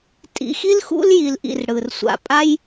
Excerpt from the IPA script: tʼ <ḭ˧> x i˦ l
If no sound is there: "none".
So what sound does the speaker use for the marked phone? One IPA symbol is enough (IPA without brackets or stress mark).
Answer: ḭ˧